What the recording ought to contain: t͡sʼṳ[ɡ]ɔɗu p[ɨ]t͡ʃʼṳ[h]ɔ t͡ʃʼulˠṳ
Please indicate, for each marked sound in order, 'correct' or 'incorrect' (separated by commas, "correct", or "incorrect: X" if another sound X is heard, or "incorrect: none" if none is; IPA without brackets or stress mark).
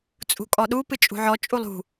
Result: incorrect: kʼ, correct, incorrect: ʕ